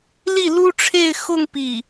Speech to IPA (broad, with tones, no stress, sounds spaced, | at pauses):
l i˥˩ l u˥ ʈ͡ʂʰ e˥˧ ɪ̯ x ʊ˥˧ ŋ p i˥˩